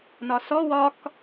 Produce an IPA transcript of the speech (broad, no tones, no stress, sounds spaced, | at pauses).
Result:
n ɒ s ɔ w ɒ k